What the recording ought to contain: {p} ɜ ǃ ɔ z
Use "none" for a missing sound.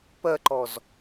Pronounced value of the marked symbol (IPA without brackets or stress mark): p